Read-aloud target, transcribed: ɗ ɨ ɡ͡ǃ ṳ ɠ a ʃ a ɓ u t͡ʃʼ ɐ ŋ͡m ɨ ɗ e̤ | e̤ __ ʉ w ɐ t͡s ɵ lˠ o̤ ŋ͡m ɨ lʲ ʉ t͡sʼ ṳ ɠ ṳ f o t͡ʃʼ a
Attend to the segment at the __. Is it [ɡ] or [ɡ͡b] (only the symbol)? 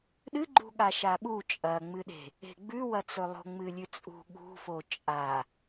ɡ͡b